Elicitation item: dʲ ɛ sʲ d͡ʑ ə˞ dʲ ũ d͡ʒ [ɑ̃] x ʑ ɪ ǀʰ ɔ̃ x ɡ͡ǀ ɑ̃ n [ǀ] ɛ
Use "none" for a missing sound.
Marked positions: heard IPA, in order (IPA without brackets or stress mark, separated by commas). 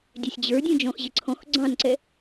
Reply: ɔ̃, ǀ